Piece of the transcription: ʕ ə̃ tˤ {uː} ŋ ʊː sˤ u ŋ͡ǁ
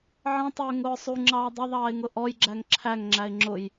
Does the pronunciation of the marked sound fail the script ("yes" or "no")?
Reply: yes